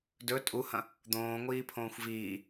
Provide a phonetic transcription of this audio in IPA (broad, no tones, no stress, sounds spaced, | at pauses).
d ɵ tʼ u h ɐ̃ | d̪ õː ŋʷ iː pʰ õː xʷ v iː